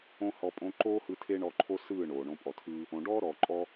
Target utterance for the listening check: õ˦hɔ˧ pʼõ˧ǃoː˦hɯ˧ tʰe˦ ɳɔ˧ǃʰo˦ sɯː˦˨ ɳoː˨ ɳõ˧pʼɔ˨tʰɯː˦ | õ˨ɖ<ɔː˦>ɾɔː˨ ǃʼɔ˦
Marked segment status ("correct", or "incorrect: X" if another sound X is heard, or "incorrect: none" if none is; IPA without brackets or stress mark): correct